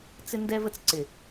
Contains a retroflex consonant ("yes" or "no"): no